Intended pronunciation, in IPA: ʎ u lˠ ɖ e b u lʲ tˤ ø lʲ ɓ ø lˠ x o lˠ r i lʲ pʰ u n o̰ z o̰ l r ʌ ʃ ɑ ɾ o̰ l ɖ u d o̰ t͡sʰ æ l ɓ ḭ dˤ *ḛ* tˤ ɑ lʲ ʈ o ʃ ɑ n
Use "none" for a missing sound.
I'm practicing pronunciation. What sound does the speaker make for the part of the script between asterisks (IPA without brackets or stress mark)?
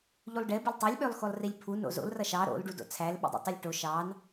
ḭ